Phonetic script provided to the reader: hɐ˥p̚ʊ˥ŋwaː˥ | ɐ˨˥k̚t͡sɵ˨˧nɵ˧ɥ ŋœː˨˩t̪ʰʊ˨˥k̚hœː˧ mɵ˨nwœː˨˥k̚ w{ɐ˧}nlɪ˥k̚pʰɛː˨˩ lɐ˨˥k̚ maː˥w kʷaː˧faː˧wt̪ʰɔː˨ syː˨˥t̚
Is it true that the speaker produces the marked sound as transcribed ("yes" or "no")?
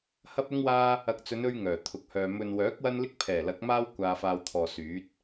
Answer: no